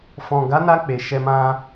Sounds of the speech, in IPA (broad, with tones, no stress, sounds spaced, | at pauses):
f ɔ̃˨ ɡ a˨˦ n a˧ k͡p e˨ ʃ ɛ˧ m ã˦